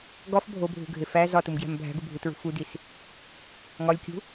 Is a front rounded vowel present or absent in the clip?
absent